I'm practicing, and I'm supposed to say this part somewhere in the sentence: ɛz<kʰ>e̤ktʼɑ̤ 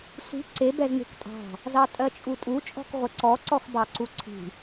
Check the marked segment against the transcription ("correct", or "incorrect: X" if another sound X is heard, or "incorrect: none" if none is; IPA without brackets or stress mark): incorrect: ŋ